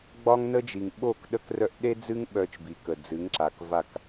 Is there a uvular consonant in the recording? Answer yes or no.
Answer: no